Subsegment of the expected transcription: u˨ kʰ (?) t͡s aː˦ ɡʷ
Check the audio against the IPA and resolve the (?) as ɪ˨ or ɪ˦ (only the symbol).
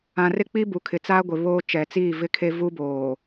ɪ˨